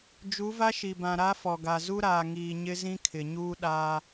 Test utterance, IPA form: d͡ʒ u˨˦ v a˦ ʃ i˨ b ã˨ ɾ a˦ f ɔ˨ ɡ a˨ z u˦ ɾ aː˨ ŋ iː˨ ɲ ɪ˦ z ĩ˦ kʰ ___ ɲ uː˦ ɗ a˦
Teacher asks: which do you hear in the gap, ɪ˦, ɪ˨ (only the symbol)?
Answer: ɪ˨